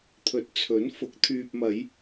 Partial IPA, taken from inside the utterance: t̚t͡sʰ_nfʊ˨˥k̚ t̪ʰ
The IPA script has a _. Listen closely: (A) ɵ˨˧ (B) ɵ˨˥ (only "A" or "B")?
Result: B